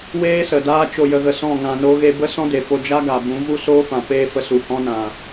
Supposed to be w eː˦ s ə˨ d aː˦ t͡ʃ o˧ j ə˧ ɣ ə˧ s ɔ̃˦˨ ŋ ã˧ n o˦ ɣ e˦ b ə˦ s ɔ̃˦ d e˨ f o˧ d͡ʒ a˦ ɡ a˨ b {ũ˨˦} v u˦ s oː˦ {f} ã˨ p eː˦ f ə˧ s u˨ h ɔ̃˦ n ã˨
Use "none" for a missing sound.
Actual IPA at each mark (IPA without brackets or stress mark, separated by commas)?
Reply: ũ˨˦, f